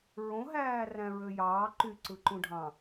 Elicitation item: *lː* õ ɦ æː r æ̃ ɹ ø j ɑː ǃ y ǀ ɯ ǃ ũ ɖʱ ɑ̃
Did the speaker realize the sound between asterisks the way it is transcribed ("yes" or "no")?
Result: no